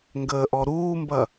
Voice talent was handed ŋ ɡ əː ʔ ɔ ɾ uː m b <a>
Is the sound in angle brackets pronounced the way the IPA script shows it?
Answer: no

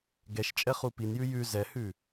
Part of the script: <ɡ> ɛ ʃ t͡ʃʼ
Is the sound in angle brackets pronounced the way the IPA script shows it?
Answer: yes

